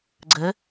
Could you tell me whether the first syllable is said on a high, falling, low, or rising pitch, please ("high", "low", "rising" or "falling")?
rising